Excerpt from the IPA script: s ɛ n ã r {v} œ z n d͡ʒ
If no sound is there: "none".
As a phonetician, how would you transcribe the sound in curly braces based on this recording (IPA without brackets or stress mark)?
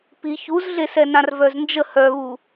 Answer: v